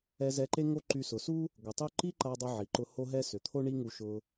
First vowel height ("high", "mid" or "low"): mid